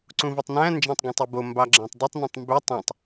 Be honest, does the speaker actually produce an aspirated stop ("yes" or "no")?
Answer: no